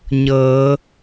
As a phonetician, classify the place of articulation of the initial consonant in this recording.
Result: palatal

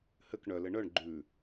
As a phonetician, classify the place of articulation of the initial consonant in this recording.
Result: glottal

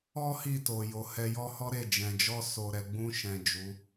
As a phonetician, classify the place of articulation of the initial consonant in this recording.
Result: glottal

